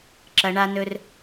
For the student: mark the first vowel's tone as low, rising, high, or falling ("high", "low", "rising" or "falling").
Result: low